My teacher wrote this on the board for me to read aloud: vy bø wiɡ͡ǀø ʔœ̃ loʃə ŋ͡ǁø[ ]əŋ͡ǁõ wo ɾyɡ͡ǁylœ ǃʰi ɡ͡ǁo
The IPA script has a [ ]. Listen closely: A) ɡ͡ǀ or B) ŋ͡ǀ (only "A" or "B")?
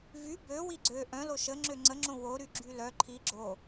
B